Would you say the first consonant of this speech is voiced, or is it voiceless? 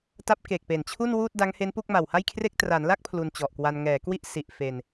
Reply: voiceless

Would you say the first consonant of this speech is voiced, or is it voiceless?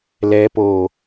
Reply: voiced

